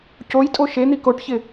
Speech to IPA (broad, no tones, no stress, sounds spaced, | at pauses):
c o j tʼ o ʃ e n̪ i k o ʈ ç ɪ